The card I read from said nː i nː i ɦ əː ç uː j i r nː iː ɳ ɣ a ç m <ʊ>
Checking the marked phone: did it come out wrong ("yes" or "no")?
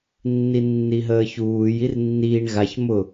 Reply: no